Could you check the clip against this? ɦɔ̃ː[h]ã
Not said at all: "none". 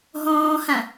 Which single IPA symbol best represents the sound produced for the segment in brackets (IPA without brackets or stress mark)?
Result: h